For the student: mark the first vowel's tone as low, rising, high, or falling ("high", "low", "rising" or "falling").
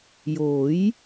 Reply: rising